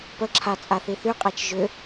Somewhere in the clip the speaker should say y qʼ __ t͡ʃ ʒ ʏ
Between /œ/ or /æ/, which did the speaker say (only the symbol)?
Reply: æ